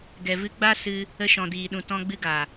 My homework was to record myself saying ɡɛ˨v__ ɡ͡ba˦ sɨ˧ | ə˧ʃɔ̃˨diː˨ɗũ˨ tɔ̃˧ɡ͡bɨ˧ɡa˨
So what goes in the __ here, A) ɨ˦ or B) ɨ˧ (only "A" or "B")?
B